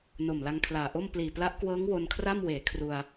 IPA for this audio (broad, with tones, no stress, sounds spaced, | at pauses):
n o˨˩ m l a˧ ŋ kʰ l aː˨˩ ʔ o˥˩ m p l iː˨˩ p l a˦˥ ʔ k w ɤː˦˥ ŋ w o˧ n kʰ r a˥˩ m w eː˩˦ kʰ r u˧ a̯